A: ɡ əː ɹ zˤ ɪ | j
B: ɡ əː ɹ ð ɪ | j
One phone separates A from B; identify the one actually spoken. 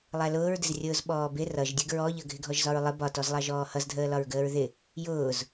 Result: B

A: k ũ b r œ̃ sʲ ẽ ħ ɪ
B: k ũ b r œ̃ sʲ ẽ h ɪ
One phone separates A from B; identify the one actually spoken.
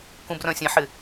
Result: A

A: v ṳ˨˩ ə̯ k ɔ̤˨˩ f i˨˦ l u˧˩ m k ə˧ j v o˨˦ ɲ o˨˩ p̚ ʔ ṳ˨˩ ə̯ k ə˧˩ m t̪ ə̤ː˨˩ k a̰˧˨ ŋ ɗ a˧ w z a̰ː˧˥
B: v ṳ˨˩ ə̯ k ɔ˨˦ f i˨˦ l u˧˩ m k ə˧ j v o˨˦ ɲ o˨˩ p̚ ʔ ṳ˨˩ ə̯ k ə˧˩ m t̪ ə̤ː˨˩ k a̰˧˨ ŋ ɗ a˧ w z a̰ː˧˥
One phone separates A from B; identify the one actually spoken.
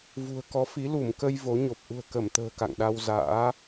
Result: B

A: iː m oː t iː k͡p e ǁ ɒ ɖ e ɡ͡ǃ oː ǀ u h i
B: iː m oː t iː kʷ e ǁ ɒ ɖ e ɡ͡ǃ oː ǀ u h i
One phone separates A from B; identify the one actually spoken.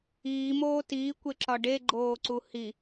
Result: B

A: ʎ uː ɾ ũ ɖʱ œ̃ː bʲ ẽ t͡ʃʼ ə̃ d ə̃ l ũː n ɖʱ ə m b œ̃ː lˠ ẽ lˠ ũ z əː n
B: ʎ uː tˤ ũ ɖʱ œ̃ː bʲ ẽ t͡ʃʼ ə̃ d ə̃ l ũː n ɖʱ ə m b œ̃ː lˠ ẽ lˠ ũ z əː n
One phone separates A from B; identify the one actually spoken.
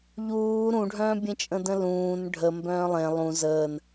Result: A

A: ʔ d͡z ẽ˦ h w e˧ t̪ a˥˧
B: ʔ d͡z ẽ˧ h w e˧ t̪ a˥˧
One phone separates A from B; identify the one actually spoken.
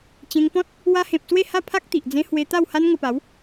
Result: A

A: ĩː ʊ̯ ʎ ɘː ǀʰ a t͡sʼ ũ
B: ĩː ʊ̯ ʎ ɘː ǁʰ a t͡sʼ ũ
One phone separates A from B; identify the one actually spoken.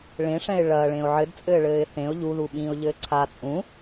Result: A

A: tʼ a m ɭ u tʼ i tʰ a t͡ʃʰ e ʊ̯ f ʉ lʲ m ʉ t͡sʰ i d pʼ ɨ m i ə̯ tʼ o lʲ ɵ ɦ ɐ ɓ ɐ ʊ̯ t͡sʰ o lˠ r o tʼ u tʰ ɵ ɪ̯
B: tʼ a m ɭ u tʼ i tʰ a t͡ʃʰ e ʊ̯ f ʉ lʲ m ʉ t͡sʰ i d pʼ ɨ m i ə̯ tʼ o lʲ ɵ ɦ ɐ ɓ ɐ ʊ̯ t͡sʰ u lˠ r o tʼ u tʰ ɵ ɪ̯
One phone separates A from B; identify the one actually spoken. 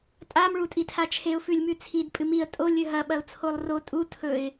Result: A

